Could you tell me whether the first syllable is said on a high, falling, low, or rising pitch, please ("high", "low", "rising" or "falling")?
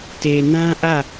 low